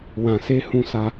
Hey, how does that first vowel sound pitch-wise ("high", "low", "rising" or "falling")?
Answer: low